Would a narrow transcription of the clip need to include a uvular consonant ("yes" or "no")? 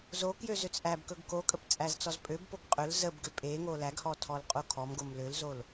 yes